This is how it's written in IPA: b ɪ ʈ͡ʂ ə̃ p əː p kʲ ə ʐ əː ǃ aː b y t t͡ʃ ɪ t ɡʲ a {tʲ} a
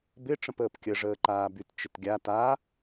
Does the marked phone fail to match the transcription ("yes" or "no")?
yes